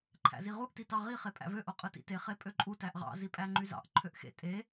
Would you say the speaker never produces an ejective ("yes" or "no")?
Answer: no